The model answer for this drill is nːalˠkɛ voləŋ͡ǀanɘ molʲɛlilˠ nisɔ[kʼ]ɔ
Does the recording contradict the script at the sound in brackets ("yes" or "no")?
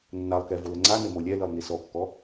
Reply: yes